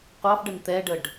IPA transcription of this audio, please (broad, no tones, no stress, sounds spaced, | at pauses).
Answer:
qʷ ɑ f ɖ ə n t̪ ɛ ɖ ə ɖ